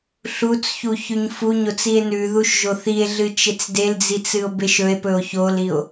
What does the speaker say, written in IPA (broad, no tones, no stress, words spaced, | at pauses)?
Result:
ɬut͡sçu çʉɲfuɲot͡s ie̯nʉðuʃ ʒoθie̯ɮɨ t͡ʃet͡sdeld͡zit͡s ɨo̯beʃɵe̯pɵo̯ çolio̯